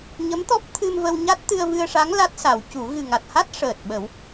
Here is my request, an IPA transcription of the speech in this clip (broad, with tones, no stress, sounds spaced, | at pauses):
ɲ ə˧˥ m t̪ ɔ˦˥ p̚ t̪ʰ ɨ˧ m v ə˧ w ɲ a˦˥ t̚ t̪ ɨ˧ ə̯ v ɨ˧ ə̯ ʂ a˧˥ ŋ l a˦˥ t̚ s a˨˩˦ w c u˨˩˦ ɣ ɨ˨˩ ŋ a˨˩ t̚ h a˦˥ t̚ ʂ əː˨˩ t̚ ɓ ə˨˩˦ w